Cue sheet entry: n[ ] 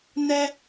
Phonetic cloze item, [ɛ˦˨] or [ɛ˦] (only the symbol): ɛ˦